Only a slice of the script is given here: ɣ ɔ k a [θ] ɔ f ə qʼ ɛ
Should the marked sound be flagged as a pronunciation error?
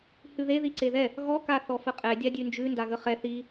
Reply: no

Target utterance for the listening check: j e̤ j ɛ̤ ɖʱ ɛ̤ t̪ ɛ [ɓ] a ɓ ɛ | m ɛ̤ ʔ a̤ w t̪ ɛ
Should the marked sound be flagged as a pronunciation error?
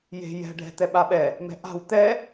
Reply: no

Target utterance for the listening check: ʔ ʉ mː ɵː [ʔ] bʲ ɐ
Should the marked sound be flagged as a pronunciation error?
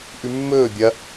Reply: yes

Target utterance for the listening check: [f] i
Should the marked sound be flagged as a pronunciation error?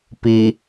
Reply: yes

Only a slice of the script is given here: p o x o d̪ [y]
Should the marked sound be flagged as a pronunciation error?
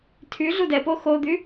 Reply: no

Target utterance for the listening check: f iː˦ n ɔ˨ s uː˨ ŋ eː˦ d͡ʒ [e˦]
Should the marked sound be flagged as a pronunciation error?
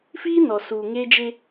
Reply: no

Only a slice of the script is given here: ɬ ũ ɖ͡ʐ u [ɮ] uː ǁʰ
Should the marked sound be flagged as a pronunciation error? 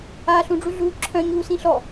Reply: no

